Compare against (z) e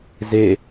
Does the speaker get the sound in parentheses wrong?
no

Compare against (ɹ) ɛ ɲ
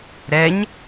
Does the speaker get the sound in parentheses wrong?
yes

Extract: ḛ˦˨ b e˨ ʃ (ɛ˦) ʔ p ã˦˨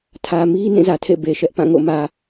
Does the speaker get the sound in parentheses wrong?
no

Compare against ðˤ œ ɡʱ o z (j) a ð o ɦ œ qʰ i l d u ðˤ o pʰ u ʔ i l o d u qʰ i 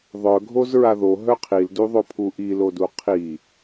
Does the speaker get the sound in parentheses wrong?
yes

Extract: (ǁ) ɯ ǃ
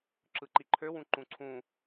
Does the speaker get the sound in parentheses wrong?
no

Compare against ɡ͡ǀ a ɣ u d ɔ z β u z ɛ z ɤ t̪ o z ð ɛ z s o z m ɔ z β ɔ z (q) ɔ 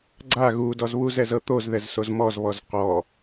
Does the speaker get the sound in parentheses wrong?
no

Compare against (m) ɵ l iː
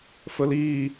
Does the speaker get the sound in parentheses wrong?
yes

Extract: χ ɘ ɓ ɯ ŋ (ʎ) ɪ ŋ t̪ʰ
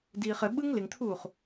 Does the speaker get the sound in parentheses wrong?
yes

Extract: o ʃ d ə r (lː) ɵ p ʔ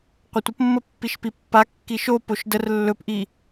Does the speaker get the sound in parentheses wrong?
no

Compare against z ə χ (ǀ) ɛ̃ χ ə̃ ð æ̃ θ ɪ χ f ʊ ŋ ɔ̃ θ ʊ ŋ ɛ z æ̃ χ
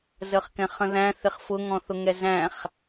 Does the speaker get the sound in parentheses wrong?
yes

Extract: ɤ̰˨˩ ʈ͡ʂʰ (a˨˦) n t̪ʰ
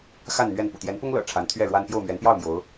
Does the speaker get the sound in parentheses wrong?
no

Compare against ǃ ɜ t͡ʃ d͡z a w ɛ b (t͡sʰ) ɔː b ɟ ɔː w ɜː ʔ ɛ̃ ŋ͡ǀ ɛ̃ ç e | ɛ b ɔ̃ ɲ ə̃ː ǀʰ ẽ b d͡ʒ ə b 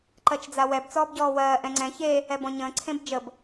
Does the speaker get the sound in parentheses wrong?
yes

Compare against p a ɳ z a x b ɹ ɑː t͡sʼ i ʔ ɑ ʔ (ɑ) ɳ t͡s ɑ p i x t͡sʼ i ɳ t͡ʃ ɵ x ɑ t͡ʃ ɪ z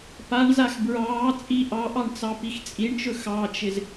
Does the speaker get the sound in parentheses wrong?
no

